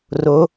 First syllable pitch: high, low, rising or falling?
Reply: rising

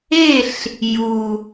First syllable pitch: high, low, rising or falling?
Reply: falling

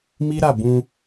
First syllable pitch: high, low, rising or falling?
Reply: high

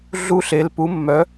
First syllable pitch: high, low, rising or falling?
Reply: high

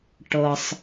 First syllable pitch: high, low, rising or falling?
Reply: low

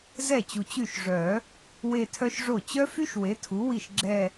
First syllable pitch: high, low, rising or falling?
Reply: falling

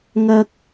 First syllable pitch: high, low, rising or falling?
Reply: high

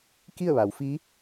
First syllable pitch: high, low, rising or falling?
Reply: falling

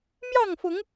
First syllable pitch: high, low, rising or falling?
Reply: falling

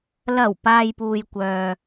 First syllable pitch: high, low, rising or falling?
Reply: low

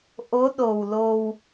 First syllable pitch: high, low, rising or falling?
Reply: rising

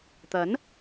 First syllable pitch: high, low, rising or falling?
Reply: rising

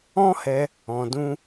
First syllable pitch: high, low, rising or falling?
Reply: high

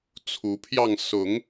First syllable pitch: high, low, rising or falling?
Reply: rising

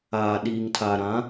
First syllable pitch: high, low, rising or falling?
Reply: low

